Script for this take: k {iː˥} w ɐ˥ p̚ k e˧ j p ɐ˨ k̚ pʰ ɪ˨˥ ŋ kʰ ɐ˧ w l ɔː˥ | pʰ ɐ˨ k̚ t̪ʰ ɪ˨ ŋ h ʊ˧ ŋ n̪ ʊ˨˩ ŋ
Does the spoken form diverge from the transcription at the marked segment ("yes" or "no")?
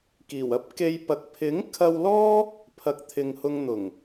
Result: yes